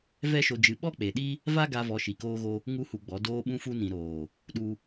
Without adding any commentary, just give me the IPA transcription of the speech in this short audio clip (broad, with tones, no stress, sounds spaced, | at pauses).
v ɛ˦ ʃ o˧ d͡ʒ ɨ˧ ɓ ɔ˦ k͡p e˨ ɗ i˦ | v a˦ ɡ a˧ v ɔ˧ ʃ i˨ k oː˧ ɣ o˧ | ŋ u˦ h u˧ ɡ͡b ɔ˨˦ d oː˧ ɓ ũ˧ f u˧ n ĩ˨ ɾ oː˨ | ɗ u˦